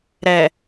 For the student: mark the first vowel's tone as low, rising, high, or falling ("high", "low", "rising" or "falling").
low